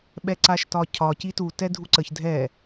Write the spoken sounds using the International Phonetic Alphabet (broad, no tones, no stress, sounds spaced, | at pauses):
ɓ ɛ ǀ a ʃ t ɒ cʰ ɒ c i t u t ɛ dʱ u ǀ ə ç dʱ ɛ